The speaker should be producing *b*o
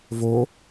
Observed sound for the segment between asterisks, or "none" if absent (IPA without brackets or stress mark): v